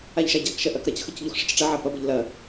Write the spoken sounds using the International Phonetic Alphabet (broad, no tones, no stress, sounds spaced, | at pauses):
a ʎ ʃ a ɟ a k ʃ ɐ ʔ ɐ k ɾ ɐ c x ə c ʎ u x ʂ ɐ c ʈ͡ʂ ɐ ʕ a p ɐ b ə ʎ l ɐ